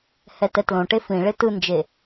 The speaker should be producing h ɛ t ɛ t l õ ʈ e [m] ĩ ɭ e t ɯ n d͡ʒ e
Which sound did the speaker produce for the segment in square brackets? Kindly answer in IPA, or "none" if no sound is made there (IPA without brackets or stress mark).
f